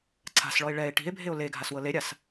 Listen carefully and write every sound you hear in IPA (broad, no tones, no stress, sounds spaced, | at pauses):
ǀʰ a̤ s ɭ ɔ e̯ ɭ ɛ e̯ ʈ i̤ e̯ bʱ e o̯ l e ɡʱ a s w ɤ l e ɾʲ a s